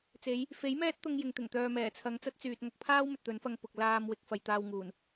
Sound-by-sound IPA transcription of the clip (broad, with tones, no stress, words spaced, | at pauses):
t͡se˨˥j | fe˨˥j mɛː˥t̚t̪ʊ˧ŋ jɪ˨ŋt̪ɪ˨˩ŋt̪œː˨mɛː˨˩ t͡sʰɐ˨˧ŋt͡sɐ˥t̚ t͡syː˨t̚ŋɐ˧k̚pʰaː˥w mɵ˨t̚t̪ɵ˨˥nfɐ˧ŋpʊ˨k̚ laː˧mwɪ˨k̚ fɐ˨jt̪aː˧wŋuː˨˩n